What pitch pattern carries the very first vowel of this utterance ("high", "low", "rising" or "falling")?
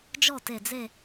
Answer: falling